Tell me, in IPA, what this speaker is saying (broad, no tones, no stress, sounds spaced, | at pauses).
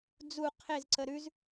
d͡z u qʰ e z ǀ ə ɾ ʉ z